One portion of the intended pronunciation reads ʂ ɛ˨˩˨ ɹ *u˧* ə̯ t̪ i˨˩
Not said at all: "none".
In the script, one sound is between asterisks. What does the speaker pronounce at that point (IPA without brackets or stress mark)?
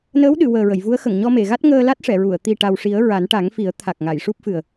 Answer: u˨˩˨